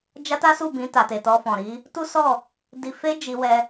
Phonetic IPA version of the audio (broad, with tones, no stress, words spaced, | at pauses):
d͡ʒa˦ta˦su˦˨bĩ˧ ta˨ te˨tɔ˧fɔ̃˨ɾi˨˦ | tu˦sɔ˦˨ | di˧fe˦ d͡ʒi˧wɛ˧